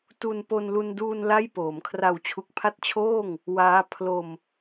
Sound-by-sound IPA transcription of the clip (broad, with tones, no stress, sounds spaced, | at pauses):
t u˧ n p o˧ n l u˧ n d uː˧ n l a˥˩ j p oː˩˦ m kʰ r a˨˩ w t͡ɕʰ u˨˩ k̚ pʰ a˦˥ t̚ t͡ɕʰ oː˥˩ ŋ | w aː˦˥ pʰ l o˧ m